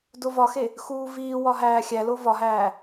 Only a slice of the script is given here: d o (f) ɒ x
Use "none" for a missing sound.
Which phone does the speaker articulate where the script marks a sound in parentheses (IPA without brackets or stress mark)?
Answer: v